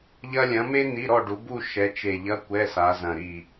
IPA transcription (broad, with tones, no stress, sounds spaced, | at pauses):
ʎ ɐ˥ lʲ ɐ̃˨˦ m e˥ n̪ i˧˥˧ ɾ ɔ˥˧ ɖ u˨˦ b u˥˧ ʃ ɛ˨˦ t͡ʃ e˧˩ ʎ ɐ˧˥˧ kʷ ɛ˧˥˧ s a˨˦ z ɐ̃˧˩ ɾ i˧˩